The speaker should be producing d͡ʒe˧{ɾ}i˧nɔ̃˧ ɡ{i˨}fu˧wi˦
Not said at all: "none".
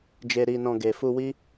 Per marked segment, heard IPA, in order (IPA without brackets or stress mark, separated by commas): ɾ, e˨